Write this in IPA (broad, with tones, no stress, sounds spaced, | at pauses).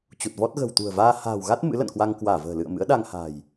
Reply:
t͡ɕ u˨˩ t̚ v ɔ˦˥ t̚ ɣ ə̤˨˩ w t̪ ṳ˨˩ ə̯ v aː˧ h a̤ː˨˩ w ɣ a˦˥ t̚ m ɨ̰˧˥ l ə̰˧˨ n k w a˧ ŋ k w aː˧˩ v ə̤ː˨˩ l ɨ̰˧˨ ə̯ m ɨ̰˧˥ ə̯ ɗ a˧ ŋ h a̤ː˨˩ j